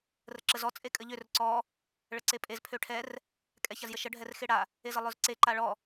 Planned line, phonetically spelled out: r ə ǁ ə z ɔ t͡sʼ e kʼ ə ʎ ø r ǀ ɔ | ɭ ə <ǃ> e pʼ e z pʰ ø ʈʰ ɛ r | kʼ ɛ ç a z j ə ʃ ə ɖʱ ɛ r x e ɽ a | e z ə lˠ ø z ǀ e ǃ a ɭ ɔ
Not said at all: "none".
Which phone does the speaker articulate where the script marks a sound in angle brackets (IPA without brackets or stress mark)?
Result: ǀ